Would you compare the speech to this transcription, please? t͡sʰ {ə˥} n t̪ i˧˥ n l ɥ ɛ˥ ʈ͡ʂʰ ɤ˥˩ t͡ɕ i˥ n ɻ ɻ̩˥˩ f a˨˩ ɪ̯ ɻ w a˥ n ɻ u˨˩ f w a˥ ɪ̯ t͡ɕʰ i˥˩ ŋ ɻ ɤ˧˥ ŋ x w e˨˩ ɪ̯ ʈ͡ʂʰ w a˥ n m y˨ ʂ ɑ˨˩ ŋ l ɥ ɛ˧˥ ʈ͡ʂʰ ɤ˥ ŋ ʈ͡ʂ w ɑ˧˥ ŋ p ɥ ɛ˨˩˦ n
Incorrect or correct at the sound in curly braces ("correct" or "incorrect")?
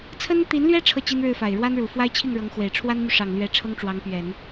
correct